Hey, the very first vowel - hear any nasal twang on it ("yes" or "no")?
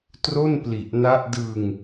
no